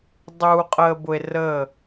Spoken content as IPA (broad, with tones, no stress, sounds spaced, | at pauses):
dˤ uː˨ qʼ əː˨ b ʊ˨ e̯ r əː˦˨